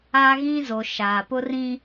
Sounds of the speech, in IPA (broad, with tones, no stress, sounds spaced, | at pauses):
aː˦ ɣ ĩ˦ z o˨ ʃ aː˨ p ʊ˦ r ĩ˦